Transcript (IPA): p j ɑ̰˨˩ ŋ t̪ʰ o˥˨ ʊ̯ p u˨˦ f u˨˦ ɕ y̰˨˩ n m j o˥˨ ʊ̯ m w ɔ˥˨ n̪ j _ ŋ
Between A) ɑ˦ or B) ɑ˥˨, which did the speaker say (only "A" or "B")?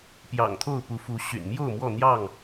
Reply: B